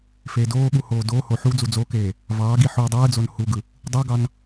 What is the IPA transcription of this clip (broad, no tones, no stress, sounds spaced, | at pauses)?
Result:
f eː d oː ɠ u h oː d oː h o ħ u d͡z u d͡z o k eː | v ɑː ɡ i ħ u dˤ ɯː d͡z o n h u ɡ ɯ | dˤ u ɡ ɑ n